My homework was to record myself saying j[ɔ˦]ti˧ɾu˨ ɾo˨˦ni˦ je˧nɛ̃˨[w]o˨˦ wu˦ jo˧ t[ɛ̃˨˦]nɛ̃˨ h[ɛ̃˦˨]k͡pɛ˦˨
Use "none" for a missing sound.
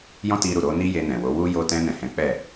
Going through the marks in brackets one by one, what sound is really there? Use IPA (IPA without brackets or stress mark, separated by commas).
ɔ̃˦, w, ɛ̃˧, ɛ̃˨˦